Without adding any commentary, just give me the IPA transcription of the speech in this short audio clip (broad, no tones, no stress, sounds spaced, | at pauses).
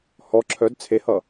h ɔ ǁʰ œ d t͡sʰ e h ʌ